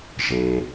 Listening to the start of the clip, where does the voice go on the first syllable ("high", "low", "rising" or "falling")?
low